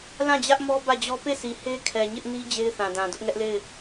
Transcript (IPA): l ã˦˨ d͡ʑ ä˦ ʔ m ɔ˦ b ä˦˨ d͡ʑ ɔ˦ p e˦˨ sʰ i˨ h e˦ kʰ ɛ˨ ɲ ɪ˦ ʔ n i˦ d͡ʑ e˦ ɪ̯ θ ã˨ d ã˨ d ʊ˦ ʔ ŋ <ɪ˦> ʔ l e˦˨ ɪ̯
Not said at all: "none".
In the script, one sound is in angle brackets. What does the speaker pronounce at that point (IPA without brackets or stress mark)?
ɛ˦